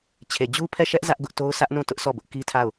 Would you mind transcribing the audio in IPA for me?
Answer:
t͡ɕʰ e˨ d͡ʑ u˦ pʰ ɛ˦˨ ʃ ɛ˦ ʔ z ä˦ ʔ ɡ ʊ˦ ʔ t o˦ ʊ̯ sʰ ä˦ ʔ n ũ˦˨ t ʊ˦ ʔ s ɔ˦˨ b ʊ˦ ʔ k i˦ tʰ a˦˨ ʊ̯

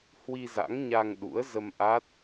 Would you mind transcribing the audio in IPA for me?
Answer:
h w i˧ z a̰˧˥ ŋ ɲ a˧ ŋ ɗ ṵ˧˥ ə̯ z ə˧ m ʔ a˦˥ t̚

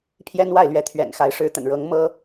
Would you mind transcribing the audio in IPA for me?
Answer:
pʰ j ɛ˥ n w a˥˩ ɪ̯ l ɥ ɛ˧˥ t̪ʰ ɥ ɛ̰˨˩ n x a˧˥ ɪ̯ ʂ ɻ̩˧˥ t̪ ə̰˨˩ n ɻ ɤ˧˥ ŋ m ɤ˥

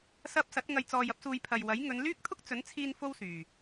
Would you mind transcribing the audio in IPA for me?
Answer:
s ɐ˧ p̚ s ɐ˨˥ t̚ ŋ ɐ˧ j t͡s ɔː˧ j ɐ˥ p̚ s uː˧ j pʰ ɐ˨ j w ɐ˨˥ j ŋ ɵ˨˧ n l yː˥ k̚ t̪ʰ ʊ˥ k̚ t͡s ɵ˨˥ n t͡sʰ iː˧ n f o˥ w s yː˨

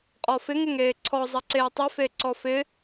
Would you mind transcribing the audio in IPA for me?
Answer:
qʼ ɔ f ɪ ŋ ɪ ŋ eː ǀʰ ɔ zˤ ɛ ǀ eː tˤ ɪ f e ǀ ɔ f ɪ

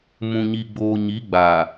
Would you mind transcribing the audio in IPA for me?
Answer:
m ũ˨ ɲ i˨ ɡ͡b oː˨ ɲ i˨˦ ɡ͡b aː˨

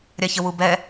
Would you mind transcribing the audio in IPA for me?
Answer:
ɾʲ a ç ə w u b ɛ

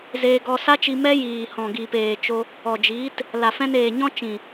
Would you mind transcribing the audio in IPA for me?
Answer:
z eː˧ ɡ ɔ˧ s a˦ t͡ʃ i˧ m ɛ˦ j iː˨ h ɔ̃˨ ɡ iː˨ p eː˨ t͡ʃ o˧ | ɔ˨ d͡ʒ iː˨˦ t | l a˨ f ɛ̃˧ n eː˨ ɲ ɔ̃˦ t͡ʃ ĩ˨

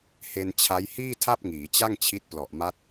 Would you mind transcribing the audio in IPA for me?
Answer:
h e˧ n t͡ɕʰ a˦˥ j h iː˥˩ tʰ a˥˩ p̚ ŋ iː˩˦ t͡ɕ a˥˩ ŋ t͡ɕʰ i˦˥ t̚ p l ɔ˨˩ ʔ m a˦˥ t̚

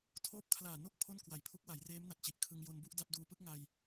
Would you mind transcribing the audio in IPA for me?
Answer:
tʰ oː˦˥ p̚ kʰ l aː˨˩ n o˥˩ k̚ pʰ o˥˩ n k w a˨˩ j pʰ u˦˥ k̚ w a˩˦ j r eː˦˥ m n a˨˩ t̚ t͡ɕ i˨˩ ʔ kʰ ɯ˧ ŋ j o˧ n b u˥˩ ʔ d a˥˩ p̚ d uː˦˥ p ɯ˦˥ k̚ ŋ a˧ j

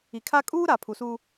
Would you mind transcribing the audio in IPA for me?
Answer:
i˨ kʰ a˦ kʼ uː˦ ɾ a˨ pʰ u˨ s uː˦

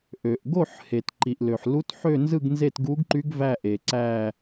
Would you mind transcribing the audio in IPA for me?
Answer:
ʔ ø˩ ʔ ɡ o˥˨ ħ h e˩ t ǃ i˩ ʔ l ø˩ ħ l u˧˥ t ħ ø˥˨ n z ɯ˥˨ ɡ n z e˥˨ t ɡ u˧˥ ɡ ǃ y˧˥ ɡ v æ˥˨ ʔ e˩ ǀ æ˥˨

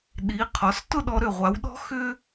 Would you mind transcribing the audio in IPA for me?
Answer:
ɗ i˩˧ qʰ ɔ˩˧ s t ʊ˥˧ ɗ ɔ˧ ɾ ʏ˧˩ ʁʷ a˩˧ w ɗ ɔ̤˥ x ʏ˥

